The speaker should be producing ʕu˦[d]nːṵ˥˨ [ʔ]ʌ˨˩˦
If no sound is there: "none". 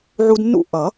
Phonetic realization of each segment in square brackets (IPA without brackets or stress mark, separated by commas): d, ʔ